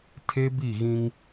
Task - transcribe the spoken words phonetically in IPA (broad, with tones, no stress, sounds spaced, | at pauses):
tʰ e˦ b i˦˨ ɣ ĩ˦ ŋ